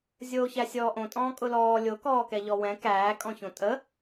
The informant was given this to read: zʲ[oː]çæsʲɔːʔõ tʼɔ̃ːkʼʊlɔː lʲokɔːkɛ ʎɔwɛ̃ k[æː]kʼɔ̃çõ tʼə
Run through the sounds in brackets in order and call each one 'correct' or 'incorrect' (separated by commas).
correct, correct